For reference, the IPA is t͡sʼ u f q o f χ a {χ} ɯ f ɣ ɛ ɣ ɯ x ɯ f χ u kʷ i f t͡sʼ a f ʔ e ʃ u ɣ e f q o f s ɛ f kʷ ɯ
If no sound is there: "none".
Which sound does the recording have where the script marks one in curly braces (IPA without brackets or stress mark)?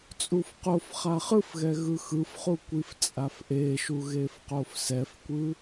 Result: χ